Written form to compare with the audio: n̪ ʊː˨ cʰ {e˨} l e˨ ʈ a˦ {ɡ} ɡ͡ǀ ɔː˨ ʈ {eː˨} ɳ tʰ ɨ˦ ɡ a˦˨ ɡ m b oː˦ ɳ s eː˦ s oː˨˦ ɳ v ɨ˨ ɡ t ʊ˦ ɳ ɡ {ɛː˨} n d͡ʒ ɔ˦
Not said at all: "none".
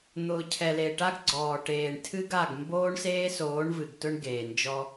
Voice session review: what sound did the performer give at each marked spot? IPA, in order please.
ɛ˨, ɡ, eː˨, eː˨

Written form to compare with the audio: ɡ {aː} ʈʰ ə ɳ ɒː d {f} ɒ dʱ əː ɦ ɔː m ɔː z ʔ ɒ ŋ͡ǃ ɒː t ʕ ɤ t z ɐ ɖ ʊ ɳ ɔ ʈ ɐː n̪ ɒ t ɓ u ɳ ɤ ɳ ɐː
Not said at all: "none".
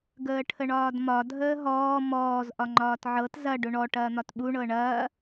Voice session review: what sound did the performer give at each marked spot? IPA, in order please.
əː, m

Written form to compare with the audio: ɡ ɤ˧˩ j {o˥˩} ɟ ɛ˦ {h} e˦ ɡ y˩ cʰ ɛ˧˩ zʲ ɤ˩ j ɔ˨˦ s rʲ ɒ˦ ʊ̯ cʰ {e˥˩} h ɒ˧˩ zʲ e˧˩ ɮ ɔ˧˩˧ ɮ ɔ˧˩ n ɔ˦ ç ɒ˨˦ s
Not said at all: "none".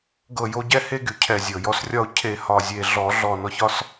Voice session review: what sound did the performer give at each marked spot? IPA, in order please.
o˦, h, e˧˩

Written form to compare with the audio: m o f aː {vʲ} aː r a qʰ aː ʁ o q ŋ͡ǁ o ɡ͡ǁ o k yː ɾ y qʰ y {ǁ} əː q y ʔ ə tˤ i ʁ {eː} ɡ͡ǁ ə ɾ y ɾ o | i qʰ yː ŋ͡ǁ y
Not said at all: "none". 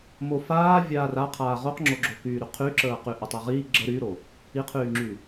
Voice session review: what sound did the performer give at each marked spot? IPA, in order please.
vʲ, ǁ, iː

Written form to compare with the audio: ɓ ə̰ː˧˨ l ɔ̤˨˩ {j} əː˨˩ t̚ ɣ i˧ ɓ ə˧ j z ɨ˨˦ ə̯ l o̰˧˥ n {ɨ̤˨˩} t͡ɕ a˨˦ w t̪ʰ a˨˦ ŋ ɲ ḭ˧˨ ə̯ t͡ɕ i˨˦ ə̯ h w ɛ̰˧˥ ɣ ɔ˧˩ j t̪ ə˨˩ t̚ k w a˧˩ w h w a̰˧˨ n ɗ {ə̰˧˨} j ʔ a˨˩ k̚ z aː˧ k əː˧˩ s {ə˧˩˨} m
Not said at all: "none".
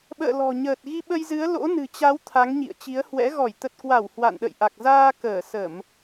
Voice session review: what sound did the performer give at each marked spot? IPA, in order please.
ɲ, ɨ̤˨˩, ə̰˧˨, ə˧˩˨

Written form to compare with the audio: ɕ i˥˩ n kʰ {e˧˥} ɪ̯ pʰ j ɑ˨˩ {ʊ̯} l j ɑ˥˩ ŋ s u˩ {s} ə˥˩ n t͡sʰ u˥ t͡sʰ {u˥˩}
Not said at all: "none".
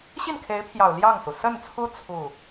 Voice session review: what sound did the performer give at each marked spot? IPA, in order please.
e˧˥, ʊ̯, s, u˥˩

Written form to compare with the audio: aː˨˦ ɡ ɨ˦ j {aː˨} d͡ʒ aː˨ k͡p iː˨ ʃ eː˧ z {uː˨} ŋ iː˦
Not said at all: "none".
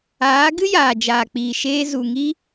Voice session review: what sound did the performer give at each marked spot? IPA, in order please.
aː˨, u˨

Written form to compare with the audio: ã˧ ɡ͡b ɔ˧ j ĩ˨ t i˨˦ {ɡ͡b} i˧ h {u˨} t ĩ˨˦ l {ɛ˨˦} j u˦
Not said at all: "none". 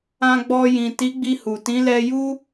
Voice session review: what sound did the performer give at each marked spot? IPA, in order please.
ɡ͡b, u˨, ɛ˧

